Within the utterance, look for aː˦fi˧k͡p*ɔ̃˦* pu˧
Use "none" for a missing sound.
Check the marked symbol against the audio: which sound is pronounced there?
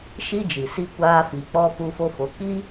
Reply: ɔ˦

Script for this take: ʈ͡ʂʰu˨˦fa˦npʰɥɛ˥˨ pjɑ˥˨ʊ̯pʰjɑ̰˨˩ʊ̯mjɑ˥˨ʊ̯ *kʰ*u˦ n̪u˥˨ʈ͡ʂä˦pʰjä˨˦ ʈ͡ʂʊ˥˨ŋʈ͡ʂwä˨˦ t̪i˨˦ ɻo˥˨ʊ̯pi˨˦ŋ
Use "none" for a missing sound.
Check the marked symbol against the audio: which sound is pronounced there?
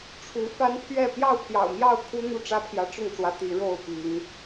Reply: kʰ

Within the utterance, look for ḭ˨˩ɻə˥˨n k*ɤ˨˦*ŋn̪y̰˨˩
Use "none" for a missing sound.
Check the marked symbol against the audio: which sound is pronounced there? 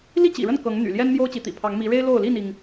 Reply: ɤ˨˦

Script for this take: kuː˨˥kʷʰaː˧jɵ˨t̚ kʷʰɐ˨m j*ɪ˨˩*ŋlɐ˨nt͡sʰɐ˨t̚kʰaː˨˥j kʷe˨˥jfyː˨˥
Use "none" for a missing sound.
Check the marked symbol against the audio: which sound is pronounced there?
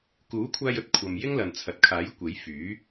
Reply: ɪ˥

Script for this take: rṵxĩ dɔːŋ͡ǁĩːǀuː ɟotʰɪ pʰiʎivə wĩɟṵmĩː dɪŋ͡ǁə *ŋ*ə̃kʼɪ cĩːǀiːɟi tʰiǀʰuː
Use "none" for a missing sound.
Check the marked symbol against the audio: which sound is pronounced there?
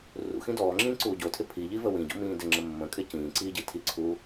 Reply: mː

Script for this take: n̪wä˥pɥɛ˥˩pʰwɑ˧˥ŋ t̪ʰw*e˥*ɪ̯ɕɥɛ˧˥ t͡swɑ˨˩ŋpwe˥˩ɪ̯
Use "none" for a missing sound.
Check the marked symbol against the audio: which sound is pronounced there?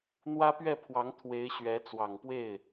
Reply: e˧˥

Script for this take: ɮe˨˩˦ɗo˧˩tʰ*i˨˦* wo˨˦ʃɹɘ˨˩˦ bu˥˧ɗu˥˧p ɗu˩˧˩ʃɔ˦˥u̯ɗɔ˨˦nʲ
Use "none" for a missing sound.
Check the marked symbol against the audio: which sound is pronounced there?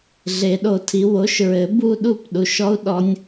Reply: i˨˦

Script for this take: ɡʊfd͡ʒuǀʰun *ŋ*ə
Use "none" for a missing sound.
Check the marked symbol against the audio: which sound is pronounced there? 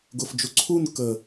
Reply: k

